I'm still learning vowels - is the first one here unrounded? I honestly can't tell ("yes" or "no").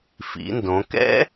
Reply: yes